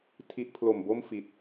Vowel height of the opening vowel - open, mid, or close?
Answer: close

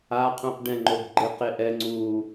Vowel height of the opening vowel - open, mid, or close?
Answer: open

